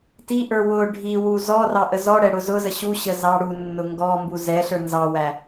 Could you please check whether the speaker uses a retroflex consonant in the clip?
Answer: yes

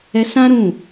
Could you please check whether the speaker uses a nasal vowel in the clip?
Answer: yes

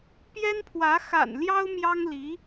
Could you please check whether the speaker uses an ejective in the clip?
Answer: no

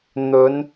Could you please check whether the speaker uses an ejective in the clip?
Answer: no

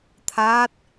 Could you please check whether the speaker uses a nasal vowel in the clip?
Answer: no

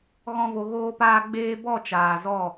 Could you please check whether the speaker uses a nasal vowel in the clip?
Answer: yes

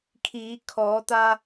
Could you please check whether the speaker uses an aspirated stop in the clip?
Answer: yes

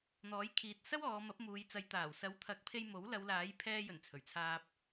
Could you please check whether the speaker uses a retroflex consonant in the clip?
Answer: no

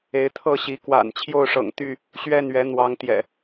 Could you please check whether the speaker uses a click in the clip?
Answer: no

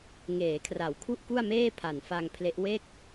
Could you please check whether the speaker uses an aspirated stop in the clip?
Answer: yes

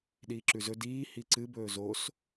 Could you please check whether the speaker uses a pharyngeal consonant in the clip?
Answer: no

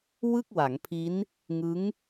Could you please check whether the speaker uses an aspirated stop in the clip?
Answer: yes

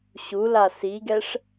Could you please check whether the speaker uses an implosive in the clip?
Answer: no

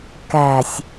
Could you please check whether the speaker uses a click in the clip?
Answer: no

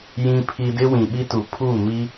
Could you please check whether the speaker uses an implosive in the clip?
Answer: yes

